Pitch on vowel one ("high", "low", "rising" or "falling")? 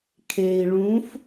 low